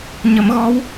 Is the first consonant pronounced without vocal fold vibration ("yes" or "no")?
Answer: no